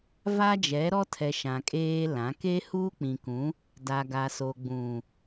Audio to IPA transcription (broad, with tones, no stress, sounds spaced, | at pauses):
v a˦ d͡ʒ ɛ˨˦ ɾ ɔ˦ tʰ ɛ˨ ʃ ã˨ kʼ eː˦ l ã˨˦ k e˦ h u˦ k͡p ĩ˨ k ũ˨˦ | d a˨ ɡ a˨ s o˨ ɡ͡b ũ˨